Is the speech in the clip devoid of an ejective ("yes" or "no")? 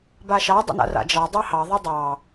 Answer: yes